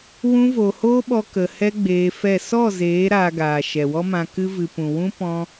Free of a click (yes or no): yes